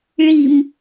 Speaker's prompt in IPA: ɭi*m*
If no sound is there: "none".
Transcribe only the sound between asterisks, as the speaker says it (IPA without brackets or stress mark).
m